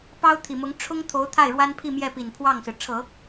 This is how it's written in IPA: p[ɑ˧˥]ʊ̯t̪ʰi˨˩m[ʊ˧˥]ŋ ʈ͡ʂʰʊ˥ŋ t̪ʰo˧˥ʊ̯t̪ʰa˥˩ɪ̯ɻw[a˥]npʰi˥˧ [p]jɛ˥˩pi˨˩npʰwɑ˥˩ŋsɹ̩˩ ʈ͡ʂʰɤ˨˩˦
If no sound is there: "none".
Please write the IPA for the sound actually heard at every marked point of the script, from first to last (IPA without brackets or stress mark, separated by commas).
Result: ɑ˥, ʊ˧˥, a˥, m